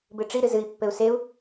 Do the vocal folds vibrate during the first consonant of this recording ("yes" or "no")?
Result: yes